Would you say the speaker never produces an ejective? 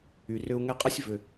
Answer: no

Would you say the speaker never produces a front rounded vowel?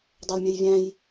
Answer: no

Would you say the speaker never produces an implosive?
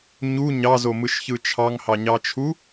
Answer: yes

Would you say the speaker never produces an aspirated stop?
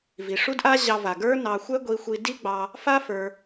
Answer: yes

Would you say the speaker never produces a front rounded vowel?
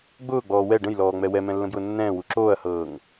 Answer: yes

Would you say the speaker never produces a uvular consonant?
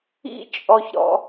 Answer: yes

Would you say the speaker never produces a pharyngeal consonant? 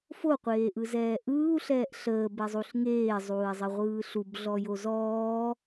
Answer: yes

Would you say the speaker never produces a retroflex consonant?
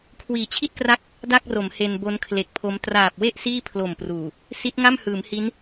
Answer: yes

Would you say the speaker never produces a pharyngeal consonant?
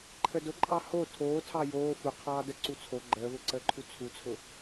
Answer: yes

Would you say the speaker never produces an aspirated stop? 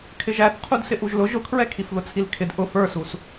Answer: no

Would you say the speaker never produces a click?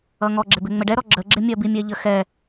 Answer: no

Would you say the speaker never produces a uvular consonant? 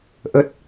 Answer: yes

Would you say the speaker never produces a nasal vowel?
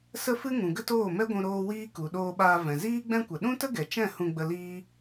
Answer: no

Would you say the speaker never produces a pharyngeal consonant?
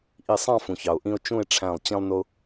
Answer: yes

